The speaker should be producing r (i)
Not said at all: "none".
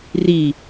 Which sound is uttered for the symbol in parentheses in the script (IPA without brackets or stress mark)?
i